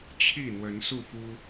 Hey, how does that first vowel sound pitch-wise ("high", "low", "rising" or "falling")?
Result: falling